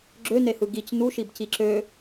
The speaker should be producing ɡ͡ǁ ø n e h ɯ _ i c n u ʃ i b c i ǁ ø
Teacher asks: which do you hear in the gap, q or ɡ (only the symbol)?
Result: ɡ